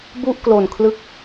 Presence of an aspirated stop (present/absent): present